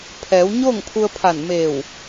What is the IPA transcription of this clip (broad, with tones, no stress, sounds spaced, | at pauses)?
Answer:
pʰ ɛː˩˧ w ɲ oː˥˨ ŋ pʰ u˧ ə̯ pʰ a˧˩ n m eː˧˩ w